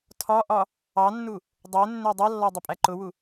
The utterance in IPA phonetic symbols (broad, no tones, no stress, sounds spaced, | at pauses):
tʰ ɒ ʔ ɒ | ɑ nː u | dˤ ɛ nː ɛ dˤ ʌ lː ɒ dˤ ʊ pʼ æ ǃ ʊ w u